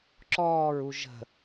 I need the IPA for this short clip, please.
ǁ ɔː ɹ u ʒ ə̤

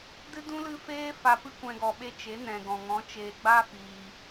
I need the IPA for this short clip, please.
d ɨ˦ d ũ˦ l ɨ˦ f eː˦ f a˧ p ɨ˦ kʷ ɛ̃˧ ɡ ɔ˨ ɓ e˧ t͡ʃ e˨˦ n ɛ̃˨ ɡ ɔ̃˨ ŋ ɔ̃˨˦ t͡ʃ eː˨ ɡ͡b a˦ f iː˨

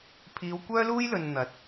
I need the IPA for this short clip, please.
pʰ iː˨˧ w kʷ œː˥ l uː˥ j l ɵ˨ n n̪ ɐ˨˥ t̚

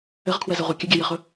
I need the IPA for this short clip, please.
ɘ ʁ kʰ w ɛ z ɛ ʁʷ ɛ kʲ ɘ ɡʲ ɛ j ɘ χ ɵ

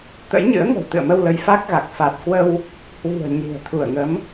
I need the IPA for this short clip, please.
t̪ ə̰˧˥ j ɲ ɨ̰˧˥ ə̯ ŋ ə̤˨˩ w t̪ ɨ̰˧˨ ə̯ m ə˧ w l ə˨˦ j f a˦˥ k̚ ɣ a˨˩ k̚ f a˨˩ t̚ k w ə˧ w | h w i̤˨˩ ə̯ ɲ i̤˨˩ ə̯ t̪ʰ u˧˩ ə̯ ŋ ə˨˦ m

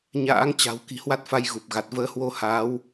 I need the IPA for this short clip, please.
ɲ a̰ː˧˥ ŋ t͡ɕ a̤˨˩ w k i̤˨˩ h w a˦˥ t̚ f a˧ j ɣ u˨˩ p̚ ɣ a˨˩ t̚ v əː˨˦ h w o˧ h aː˨˦ w

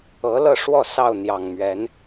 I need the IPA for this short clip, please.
ɤ˨˦ l ɤ˥˨ ʂ w ɔ˥˨ s ɑ˥˨ ʊ̯ n̪ j ɑ˨˩ ŋ m ɥ ɛ˨˦ n

